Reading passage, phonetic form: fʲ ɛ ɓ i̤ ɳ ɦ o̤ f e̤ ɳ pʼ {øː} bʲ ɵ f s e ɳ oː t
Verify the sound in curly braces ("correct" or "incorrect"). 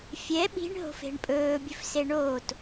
incorrect